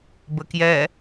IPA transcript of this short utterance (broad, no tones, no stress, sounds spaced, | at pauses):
b ə k j ɛ